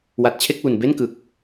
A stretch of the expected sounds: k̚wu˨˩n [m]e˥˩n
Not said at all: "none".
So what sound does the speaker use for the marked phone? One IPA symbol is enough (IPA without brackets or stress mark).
b